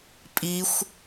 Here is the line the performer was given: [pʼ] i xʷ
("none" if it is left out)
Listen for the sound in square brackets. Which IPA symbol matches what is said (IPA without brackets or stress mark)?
pʼ